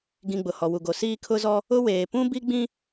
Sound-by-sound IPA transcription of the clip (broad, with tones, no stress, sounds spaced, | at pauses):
ɡ ĩ˨ ɡ͡b ʊ˨ h ɔ˨ w u˨ ɡ o˨ s iː˦ kʰ ʊ˦ z ɔ˦ | ʊ˦ w eː˨ p ũ˦ b i˦ ɡ͡b ĩ˦